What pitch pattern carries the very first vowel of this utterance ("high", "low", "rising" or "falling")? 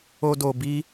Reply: high